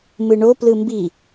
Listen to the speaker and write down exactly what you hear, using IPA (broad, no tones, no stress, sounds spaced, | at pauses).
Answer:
m ɯ ɳ o p l ɯ m b i